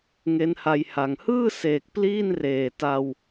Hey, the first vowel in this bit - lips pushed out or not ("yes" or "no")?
no